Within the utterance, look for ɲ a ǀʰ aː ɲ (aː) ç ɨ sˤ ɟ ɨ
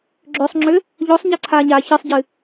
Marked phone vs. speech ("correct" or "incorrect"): correct